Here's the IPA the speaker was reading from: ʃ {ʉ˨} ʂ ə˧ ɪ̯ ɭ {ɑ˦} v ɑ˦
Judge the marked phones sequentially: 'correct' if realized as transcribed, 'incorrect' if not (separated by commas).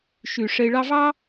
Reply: correct, correct